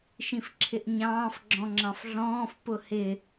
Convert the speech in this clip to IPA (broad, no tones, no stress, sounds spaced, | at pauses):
ʃ ĩ f ǁʰ ɪ ʔ ɲ ɑ̃ː f ɡ͡ǁ ɔ̃ ŋ͡ǁ ɑ̃ f ɮ ɔ̃ː f p ʊ h ɪ